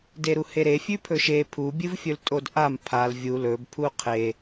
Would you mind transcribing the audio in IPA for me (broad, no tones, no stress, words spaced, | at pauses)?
deɾuheɾe fʲʉpʰɵʃe pʰu bʲɨvfʲɵltʼodʔam pʰal vʲu lɵb pʰuqʰe